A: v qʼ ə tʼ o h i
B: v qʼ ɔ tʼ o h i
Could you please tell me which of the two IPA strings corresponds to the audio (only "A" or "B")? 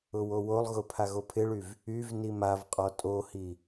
B